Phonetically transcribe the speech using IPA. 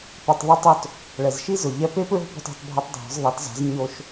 p u˩ tˤ ðˤ i˧˥ tˤ o˧˥ t | ɭ ɛ˩ z ʃ i˥ z ʊ˩ ʎ ɛ˧ p e˥ p ɹ o̤˥ p ɔ̤˧ t o̤˩˧ tˤ bʱ a˧ tˤ dʱ ɔ̤˩˧ z ðˤ ɛ˩˧ t z a̤˩˧ z ɲ o˧ ʃ

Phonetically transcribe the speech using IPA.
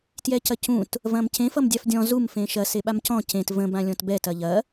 t j ɛ c ɐ c ũ t | v ɐ̃ m c ẽ f ʌ m dʲ a f dʲ ɔ̃ z u m f ẽ ʃ ɐ s e ɓ a m c ɔ̃ c ẽ t v ə̃ b ã lʲ ɔ̃ t b ɛ t ɐ ʎ ɐ

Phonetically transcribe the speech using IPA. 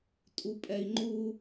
tʼ u pʼ ɛ i̯ ŋ͡ǃ u

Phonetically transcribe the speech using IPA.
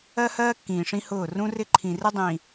ɜ˦ h ɜː˦ kː ĩː˨ ʂ ĩ˦ h ʊː˦˨ r ũ˦ r ɪ˦ ǃʰ ĩ˨ r ɪ˦ dˤ ĩː˨

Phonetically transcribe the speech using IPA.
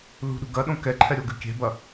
l ṳ ɗ ṳ ɡ ɐ ɗ õ k ɛ ǃʰ ɛ ɾʲ o ɡ ɨ kʲ e̤ b ɐ

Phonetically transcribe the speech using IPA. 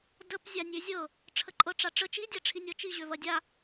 d ə p zʲ a nʲ ø zʲ ɤ | ʈ͡ʂʰ ə ǃʼ ɤ ʈ͡ʂ a ʈ͡ʂ ə t͡ʃ i dʲ a ʈ͡ʂʰ i nʲ ɤ t͡ʃ i ʑ ø v ɐ dʲ a

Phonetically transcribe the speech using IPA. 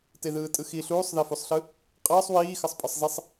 t e ð ɯː tʼ ɯ x i ɬ uː sˤ ð e f u sˤ ɬ ɯ | qʼ əː sˤ w iː x ə sˤ pʼ ə sˤ z i sˤ

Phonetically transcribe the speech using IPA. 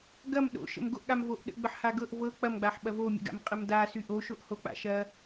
ɡ ɐ m ɗ o̰ ʃ ə̰ m ɡ o ʔ ɠ a m v o ʔ ɗ ə̰ ɡ͡b ə ħ h a ɡ ɤ ʔ v ɤ k͡p ɐ m ɡ͡b a ħ ɓ ɐ v o mʲ ə̰ ɡ a̰ m qʼ ə m d a s y ʔ o ʃ o ʔ h o k͡p a̰ ʃ ɐ

